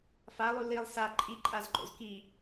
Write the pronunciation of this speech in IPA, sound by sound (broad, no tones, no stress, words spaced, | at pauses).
falˠu lilˠ sa ǃʼiǃʼazǃo̰z ki